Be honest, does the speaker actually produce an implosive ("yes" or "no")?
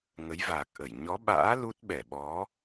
yes